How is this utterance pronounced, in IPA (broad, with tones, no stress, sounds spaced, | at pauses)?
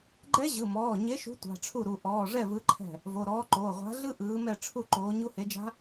ɡ͡ǃ ɛ˦˥ ʑ ɯ˩˧˩ m ɔː˩˧˩ ɲ e˨˥ ʃ ṳ˨˥ tʷ a̤˩˧˩ ʈ͡ʂʰ u˥˩ ɾ u˩˧˩ ʔ ɔː˩˧˩ ʐ ɛ˥˩ v ɯ˨˥ ǃʰ ɛ̤˥˩ | v o˩˧˩ ɾ ɔː˨˥ ǃ oː˩˧˩ ʁʷ a̤˨˥ ɮ ɯ˦˥ ʔ ɯː˨˥ m ɛ˥˩ ʈ͡ʂʰ u˥˩ ǃ oː˨˥ ɲ u˦˥ h e˨˥ d͡ʒ a̤˦˥